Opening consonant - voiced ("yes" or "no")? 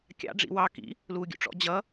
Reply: no